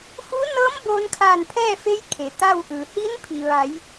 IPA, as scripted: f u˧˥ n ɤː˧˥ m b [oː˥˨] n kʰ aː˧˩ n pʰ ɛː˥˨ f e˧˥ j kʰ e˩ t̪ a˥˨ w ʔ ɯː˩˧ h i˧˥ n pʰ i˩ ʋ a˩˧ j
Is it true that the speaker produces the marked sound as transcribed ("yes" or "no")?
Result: no